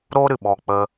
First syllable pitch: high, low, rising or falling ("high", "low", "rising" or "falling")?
high